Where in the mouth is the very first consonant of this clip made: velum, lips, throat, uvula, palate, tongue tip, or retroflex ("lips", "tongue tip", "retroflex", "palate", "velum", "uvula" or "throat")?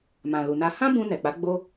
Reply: lips